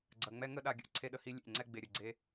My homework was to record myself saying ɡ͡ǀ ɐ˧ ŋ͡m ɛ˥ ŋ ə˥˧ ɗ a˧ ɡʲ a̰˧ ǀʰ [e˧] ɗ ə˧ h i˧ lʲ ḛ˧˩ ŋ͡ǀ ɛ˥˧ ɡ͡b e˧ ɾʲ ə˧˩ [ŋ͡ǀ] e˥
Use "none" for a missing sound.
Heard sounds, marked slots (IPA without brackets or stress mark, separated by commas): e˧, ɡ͡ǀ